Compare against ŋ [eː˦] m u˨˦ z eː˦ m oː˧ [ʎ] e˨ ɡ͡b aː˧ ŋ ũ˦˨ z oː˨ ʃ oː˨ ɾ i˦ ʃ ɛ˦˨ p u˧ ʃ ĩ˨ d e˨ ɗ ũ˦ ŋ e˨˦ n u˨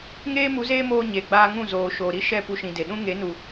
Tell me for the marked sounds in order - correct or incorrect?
correct, incorrect

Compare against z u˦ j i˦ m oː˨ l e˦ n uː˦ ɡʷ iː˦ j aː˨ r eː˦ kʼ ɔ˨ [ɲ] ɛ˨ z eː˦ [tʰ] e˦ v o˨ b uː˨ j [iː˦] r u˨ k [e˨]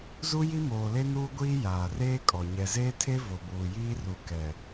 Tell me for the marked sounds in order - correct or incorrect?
correct, correct, correct, incorrect

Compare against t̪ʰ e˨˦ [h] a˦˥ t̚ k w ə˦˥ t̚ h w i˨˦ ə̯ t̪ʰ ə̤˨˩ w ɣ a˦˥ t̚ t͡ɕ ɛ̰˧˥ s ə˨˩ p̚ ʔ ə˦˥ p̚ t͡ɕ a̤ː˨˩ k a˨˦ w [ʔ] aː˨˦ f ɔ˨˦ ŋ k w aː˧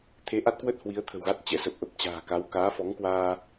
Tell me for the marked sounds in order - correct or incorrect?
incorrect, incorrect

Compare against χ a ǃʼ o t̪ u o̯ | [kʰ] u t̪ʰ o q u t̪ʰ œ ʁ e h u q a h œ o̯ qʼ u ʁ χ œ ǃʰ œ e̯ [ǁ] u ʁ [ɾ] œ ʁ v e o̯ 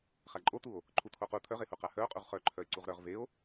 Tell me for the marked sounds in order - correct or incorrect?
incorrect, incorrect, correct

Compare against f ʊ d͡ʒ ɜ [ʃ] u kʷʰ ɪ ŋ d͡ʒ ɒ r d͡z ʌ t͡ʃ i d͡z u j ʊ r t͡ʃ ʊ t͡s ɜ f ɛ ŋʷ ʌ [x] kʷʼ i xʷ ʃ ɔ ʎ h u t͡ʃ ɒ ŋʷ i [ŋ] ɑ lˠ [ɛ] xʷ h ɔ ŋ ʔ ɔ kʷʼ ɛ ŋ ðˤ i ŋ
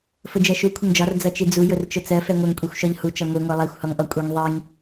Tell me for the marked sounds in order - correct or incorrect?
correct, incorrect, incorrect, correct

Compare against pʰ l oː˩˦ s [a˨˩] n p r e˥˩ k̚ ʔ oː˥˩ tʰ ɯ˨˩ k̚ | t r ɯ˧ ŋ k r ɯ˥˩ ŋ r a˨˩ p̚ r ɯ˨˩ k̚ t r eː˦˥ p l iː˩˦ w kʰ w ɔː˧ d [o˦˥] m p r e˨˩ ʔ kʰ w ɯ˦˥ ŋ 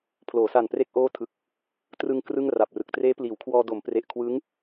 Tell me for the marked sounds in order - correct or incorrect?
correct, incorrect

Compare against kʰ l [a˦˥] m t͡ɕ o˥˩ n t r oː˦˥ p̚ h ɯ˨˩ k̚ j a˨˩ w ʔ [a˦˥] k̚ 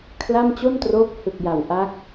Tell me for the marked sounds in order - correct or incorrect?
incorrect, correct

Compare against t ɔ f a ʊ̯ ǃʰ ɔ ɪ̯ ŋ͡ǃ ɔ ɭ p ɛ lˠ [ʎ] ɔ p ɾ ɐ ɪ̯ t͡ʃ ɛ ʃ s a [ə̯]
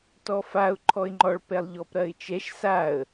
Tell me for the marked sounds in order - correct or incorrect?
correct, correct

